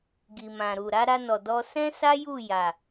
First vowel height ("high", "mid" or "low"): high